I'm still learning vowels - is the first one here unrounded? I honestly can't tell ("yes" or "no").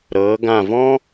yes